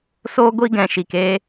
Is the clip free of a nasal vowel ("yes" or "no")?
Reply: no